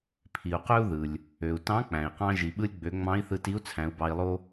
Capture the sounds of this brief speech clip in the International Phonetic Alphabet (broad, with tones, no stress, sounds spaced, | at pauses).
pʰ i˩ u̯ q ø˥ u̯ ð ɯ˩ lʲ | ø˩ u̯ t ɑ̃˧˥ k͡p æ̃˩ i̯ q ɑ̃˧ ʒ i˩ ɓ ɯ˧ lʲ ɡ͡b ø˩˧ ŋ͡m ɑ̃˧˥ i̯ θ ɯ˧ t i˧˥ u̯ t͡sʰ æ̃˩˧ u̯ b ɑ˧ i̯ lˠ o˥